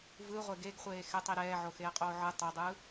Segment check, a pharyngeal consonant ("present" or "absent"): present